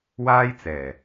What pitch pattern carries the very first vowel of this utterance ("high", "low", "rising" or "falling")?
high